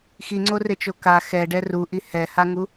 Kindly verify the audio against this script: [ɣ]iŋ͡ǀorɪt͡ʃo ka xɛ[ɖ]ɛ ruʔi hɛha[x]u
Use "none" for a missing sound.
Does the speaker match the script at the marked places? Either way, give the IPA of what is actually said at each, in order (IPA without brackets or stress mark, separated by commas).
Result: x, ɖ, ŋ